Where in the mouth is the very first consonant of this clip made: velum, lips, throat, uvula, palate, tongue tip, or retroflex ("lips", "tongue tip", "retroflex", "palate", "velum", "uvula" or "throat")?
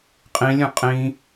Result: uvula